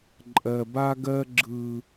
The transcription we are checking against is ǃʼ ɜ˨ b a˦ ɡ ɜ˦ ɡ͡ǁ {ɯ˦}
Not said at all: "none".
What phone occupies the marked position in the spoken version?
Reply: ɯ˦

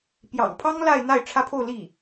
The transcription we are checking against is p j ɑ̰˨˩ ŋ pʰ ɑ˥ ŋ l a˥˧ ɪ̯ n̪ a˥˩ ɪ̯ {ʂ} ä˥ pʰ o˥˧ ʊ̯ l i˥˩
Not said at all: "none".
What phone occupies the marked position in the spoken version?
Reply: ʈ͡ʂʰ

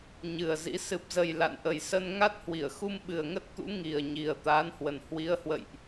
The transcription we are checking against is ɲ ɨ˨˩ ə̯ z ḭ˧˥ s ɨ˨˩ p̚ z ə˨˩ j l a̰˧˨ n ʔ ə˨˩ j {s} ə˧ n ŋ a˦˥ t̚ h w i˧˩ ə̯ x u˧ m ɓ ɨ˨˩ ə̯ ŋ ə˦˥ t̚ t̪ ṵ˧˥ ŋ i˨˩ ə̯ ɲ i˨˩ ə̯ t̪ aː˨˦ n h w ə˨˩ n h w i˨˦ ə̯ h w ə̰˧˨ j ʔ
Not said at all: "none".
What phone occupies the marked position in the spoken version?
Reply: s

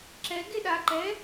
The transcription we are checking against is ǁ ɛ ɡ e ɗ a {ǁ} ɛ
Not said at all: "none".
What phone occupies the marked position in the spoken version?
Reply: ǃ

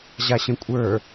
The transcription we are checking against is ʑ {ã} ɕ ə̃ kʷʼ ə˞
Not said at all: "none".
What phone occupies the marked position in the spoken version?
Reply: a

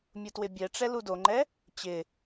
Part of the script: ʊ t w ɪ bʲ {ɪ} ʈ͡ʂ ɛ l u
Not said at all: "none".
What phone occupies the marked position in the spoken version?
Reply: ɛ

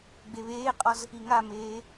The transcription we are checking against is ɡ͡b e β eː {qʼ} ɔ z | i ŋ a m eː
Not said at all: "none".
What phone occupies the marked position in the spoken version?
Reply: qʼ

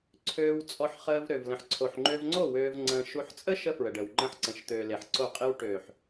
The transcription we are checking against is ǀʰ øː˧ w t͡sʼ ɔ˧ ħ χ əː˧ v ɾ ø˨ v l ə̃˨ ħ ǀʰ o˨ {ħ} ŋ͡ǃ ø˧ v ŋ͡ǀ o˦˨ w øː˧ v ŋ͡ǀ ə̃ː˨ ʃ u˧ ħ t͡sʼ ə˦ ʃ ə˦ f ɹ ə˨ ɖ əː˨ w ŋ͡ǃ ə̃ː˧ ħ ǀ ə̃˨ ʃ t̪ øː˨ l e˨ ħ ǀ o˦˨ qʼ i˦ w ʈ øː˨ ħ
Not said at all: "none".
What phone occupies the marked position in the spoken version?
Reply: ħ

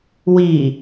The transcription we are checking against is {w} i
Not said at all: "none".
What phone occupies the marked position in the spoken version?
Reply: w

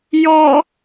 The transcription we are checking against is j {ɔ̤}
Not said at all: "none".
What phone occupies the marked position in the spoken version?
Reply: ɔ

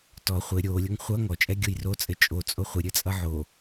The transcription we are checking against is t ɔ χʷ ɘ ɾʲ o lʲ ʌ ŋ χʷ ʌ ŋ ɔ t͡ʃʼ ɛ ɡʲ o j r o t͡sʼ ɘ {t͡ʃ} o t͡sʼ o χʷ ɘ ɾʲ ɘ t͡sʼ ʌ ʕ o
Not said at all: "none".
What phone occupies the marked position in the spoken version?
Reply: t͡ʃʼ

